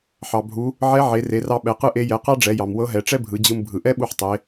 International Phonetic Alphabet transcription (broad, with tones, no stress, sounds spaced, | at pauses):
ħ ɑ˩ bʱ u˩˧ | ʕ ɛ˧˥ ʕ e˩˧ r e˩˧ r ɑ˧ ɓ ɛ˩˧ q ɯ˥ ʔ e˧˥ j ɛ˩˧ q ɑ˥ ɖ͡ʐ ɛ˩˧ j ɑ˩ m w ɤ˧˥ ɦ ɛ˩˧ ʈ͡ʂ ɛ˥ bʱ ɯ˩˧ d͡ʑ ɯ˧ m bʱ ɯ˩ ʔ ɛ˥ ɓ u˧ ħ tˤ e˩˧